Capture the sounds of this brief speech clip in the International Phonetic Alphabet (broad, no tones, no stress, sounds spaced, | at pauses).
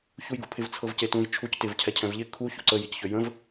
ç u j ɡ ṵ pʰ ɪ v t͡sʰ ɤ v c e t ũ j t͡ʃʰ u c t ɪ v cʰ ɛ cʰ ɛ̃ v ʎ ɪ kʰ u ç ṵ ǀ ə j i c ç ø j ə̃ v